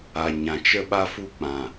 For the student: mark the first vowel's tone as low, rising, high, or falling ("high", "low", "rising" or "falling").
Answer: low